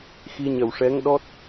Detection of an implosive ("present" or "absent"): present